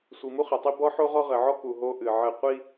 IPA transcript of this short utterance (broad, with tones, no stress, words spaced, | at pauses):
sʷi˨mu˦χɘ˨tˤi˦ bɔ˦ħo˦ʁɔ˦ ʁɘ˨ʕɔ˦ku˨ ɦo˦ʔɨ˨ʕɘ˦˨ qʷi˦